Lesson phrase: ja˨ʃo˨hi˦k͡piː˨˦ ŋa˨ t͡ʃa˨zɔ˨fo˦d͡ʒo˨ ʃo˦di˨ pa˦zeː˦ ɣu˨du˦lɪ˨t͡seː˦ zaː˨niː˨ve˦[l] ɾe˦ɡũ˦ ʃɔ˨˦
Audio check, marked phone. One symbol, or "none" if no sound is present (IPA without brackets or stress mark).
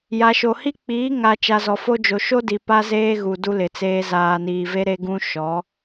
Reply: none